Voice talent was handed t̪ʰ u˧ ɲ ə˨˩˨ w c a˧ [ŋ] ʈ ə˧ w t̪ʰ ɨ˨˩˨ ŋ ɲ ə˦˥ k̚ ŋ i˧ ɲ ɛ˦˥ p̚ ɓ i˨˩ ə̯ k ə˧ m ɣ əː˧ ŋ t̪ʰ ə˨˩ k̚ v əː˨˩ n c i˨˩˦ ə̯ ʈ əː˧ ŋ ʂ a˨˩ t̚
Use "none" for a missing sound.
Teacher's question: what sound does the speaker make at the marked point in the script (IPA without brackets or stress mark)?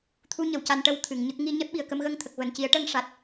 n